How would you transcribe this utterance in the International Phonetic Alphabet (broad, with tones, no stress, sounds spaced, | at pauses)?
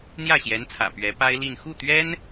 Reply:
n̪ j ä˥˩ ɕ j ɛ˧˥ n t͡sʰ ä̰˨˩ p ɥ ɛ˧˥ p a˥ ɪ̯ l i˥˧ n x u˥˩ t̪ ɥ ɛ˥ n